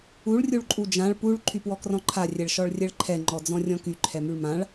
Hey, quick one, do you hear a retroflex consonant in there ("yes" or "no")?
yes